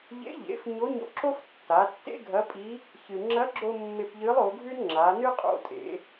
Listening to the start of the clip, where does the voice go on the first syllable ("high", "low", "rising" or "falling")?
rising